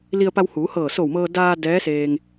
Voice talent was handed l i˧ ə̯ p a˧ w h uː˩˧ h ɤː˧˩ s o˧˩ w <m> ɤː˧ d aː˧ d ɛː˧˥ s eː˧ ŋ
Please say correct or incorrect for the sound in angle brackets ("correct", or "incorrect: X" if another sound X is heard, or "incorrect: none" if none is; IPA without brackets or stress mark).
correct